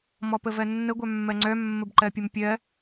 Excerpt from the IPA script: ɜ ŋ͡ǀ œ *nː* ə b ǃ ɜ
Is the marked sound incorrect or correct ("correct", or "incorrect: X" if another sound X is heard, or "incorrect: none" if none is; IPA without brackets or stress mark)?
incorrect: mː